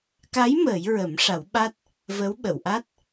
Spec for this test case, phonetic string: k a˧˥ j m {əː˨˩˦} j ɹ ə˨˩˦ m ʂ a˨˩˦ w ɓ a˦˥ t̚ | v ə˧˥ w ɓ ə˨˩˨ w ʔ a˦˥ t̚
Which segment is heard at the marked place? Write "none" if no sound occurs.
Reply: əː˨˩˦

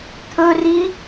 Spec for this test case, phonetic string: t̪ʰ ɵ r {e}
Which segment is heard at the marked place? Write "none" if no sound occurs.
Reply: i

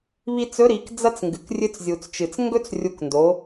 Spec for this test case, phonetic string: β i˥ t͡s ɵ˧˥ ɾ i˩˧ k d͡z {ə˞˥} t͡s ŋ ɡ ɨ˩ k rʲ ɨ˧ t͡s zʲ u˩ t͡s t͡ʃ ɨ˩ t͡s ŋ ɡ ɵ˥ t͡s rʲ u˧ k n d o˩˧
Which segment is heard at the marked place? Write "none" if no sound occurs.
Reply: ɐ˥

